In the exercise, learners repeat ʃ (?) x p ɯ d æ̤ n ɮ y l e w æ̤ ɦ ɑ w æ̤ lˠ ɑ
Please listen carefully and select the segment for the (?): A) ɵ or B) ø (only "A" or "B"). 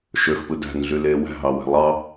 B